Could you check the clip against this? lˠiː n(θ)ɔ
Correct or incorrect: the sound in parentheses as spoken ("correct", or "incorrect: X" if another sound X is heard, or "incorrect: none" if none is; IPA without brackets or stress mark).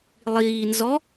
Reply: incorrect: z